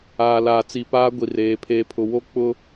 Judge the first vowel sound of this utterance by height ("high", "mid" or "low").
low